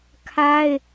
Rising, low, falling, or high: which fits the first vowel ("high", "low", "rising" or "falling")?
high